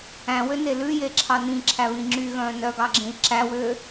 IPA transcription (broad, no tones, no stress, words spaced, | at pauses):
æ̃wøne lʉjeǁʰɑ nĩǁʰæβĩ ŋ͡ǁyɣœ̃ː nœɡɑɡ͡ǁẽi̯ ǁæwø